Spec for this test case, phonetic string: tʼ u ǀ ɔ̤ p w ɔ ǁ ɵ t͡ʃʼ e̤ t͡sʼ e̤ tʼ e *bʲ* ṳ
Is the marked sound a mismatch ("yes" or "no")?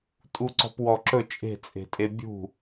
no